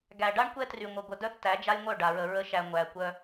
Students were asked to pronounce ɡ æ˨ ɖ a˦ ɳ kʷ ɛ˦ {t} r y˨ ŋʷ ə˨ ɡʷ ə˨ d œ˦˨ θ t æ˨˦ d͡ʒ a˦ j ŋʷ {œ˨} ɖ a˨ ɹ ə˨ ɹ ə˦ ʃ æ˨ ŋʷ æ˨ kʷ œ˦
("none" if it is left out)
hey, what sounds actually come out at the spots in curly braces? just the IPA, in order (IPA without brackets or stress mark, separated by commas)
t, œ˦˨